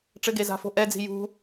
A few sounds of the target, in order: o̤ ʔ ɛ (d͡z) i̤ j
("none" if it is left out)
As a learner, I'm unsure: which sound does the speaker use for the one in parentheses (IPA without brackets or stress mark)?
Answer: d͡z